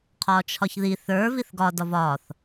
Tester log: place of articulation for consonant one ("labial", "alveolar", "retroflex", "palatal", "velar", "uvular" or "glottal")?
uvular